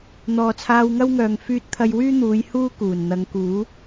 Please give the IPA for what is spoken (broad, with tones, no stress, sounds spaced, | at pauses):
n̪ ɔː˨ t͡sʰ aː˧ w ŋ ɐ˥ w ŋ œː˨ ŋ f yː˧ t̚ t̪ʰ ɐ˧ j w yː˥ n̪ uː˨˧ j h uː˥ k uː˨˩ n n̪ ɐ˨˧ ŋ k uː˨˥